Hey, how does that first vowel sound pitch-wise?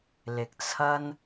low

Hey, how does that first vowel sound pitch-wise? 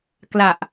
low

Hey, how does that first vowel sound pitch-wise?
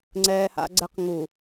high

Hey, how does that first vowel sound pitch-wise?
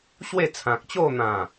falling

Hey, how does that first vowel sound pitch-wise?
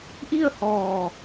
falling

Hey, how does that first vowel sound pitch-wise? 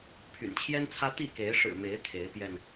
low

